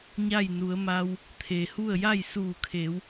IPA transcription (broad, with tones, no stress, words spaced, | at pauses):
ɲa˥˨j nu˩˧ə̯ma˧w | t̪ʰe˩hu˥˨ə̯ ja˥˨jsuː˧˩kʰeː˩˧w